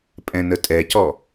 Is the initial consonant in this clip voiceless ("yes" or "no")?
yes